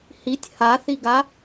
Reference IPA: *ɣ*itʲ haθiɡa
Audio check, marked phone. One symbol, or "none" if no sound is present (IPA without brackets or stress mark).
h